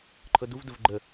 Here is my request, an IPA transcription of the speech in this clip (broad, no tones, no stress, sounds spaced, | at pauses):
ǃʰ ɤ d u v d ə v ɡ͡ǃ ə